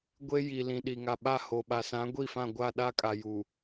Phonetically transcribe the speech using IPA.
ɡʷ e˦ j i˨ l ĩ˨ ɗ i˨ ŋ a˨ ɓ a˦˨ h o˨ ɓ a˨ s ã˨˦ ɡʷ i˦˨ f ã˦˨ ɡʷ a˦˨ ɗ a˦ kʼ a˨ j u˨

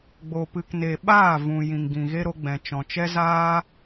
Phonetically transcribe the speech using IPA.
ɡ͡b o˨ p ɨ˨ k n e˨ ɓ aː˦˨ v ũ˨ j ĩ˨ ŋ ɡ ĩ˨ ɣ e˧ ɾ o˧ ɡ͡b ɛ̃˨ t͡ʃ ɔ̃˨ t͡ʃ ɛ˦ z aː˦

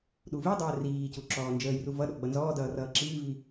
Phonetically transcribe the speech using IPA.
ɗ u v i dˤ əː r iː c u ǁ ɔː n d͡ʒ əː j r u v ʌ ɗ ɔ ɡ͡b ʌ n z ɔː d ʌː r ʌː ǁ iː v i

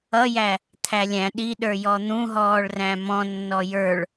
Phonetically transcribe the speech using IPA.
ʌ j æ | t̪ʰ æ lʲ æ̃ ɗ i ɗ ə˞ j ɔ n̪ ũ ɦ ɔː ɭ r æ̃ m ɔ̃ nː ɔ j ə˞ ɭ

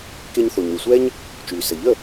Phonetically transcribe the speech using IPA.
k e˧ ɲ θ o˩ ɲ ɾ y˩ sʷ ɛ˥ ɲ | t͡ʃ yː˩ s ə˩ ʎ ə˥˩

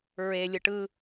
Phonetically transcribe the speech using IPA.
ɹ e lʲ ɯ ʈ ɯ

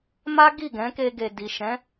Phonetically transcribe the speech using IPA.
m a˦ ɡ i˦˨ ɡ ɛ̃˨˦ k e˧ ɡ e˨ d i˨ ʃ ɛ̃˨˦

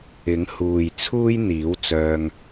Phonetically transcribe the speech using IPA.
ɪ˨˥ ŋ h uː˨ j t͡sʰ uː˥ j n̪ iː˨˥ w t͡s œː˧ ŋ

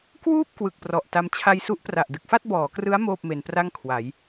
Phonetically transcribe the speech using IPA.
k w uː˥˩ p̚ k w ɯ˨˩ k̚ p r ɔ˨˩ ʔ t a˧ m t͡ɕʰ a˧ j s u˦˥ ʔ p r a˨˩ ʔ d ɯ˨˩ k̚ f a˥˩ t̚ b ɔː˩˦ k r ɯ˦˥ a̯ m oː˥˩ p̚ m e˧ n p r a˥˩ ŋ kʰ w a˩˦ j

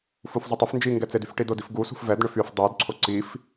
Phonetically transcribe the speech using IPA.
f u f zˤ ʏ tˤ ʏ f n d͡ʒ i ŋ ɡ ɛ t͡s e d y f ʈ i d ʊ d i f ɡ u s ṳ f v ɛ d ɳ ʏ f y f dˤ u d ǀʰ ʊ ǀ i f

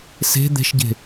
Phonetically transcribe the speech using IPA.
s e̤ d̪ e̤ ʃ ɟ e̤

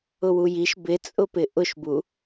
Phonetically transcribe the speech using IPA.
ʊ w u j i ʃ b ɪ t͡sʼ ʊ p ɪ ʔ ʊ ʃ b u

